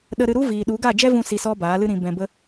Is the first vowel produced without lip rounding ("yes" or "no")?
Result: yes